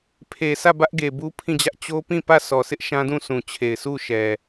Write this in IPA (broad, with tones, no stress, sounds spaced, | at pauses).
pʰ e˨ s ä˦˨ b ä˦ ʔ ɡ e˨ b u˦ pʰ ĩ˦˨ d͡ʑ ä˦ ʔ t͡ɕ o˦ p ĩ˦˨ p ä˦˨ sʰ ɔ˨ s ɪ˦ ʔ ʃ ã˦ d ũ˦˨ sʰ ũ˨ t͡ɕʰ e˨ ɪ̯ sʰ u˦˨ ʃ ɛ˨